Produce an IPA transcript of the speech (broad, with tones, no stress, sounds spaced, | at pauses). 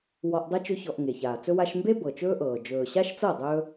w ɔ˧ ʔ dˤ ɘ˦ t͡ʃ ɵ˦ ç ɔ˧ ʔ ŋ e˨ ç aː˨ t͡s ɵ˧ w a˧ ʃ m b e˦ b ɤ˨ t͡ʃ ɵː˦ ʔ ɤː˨ d͡ʒ ɵː˨ ɕ a˦ ʃ t͡s ɤ˦˨ dˤ ɵː˦